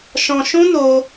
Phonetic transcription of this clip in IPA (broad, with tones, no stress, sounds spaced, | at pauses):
ʃ ɔ̃˧ ʃ ũ˦ n o˦